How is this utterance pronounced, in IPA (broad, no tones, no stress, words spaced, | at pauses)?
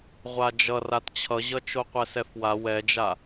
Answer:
ʁʷad͡ʒʌ ratt͡ɕʰʌʑʌ t͡ʃoqʷɛsɛfwa wɛd͡ʒa